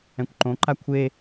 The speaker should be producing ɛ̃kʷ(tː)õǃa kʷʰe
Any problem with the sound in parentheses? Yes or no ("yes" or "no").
yes